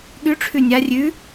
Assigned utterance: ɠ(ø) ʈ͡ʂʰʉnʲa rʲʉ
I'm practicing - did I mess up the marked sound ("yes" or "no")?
yes